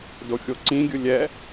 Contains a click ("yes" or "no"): yes